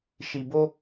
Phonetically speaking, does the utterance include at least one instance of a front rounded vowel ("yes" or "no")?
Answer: no